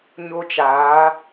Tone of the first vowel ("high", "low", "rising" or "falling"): high